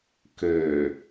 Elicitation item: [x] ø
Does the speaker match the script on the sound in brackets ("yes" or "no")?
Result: no